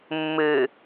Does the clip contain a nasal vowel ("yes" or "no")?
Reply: no